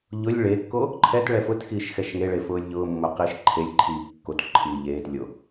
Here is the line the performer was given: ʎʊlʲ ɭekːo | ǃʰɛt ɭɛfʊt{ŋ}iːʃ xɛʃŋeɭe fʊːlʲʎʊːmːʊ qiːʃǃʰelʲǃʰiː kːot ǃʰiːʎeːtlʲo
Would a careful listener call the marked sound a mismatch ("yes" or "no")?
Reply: yes